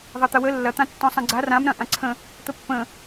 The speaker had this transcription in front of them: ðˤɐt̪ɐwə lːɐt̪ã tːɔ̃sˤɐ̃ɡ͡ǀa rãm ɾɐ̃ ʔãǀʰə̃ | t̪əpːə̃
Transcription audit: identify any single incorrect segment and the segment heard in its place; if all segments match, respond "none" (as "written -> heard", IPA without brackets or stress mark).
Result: none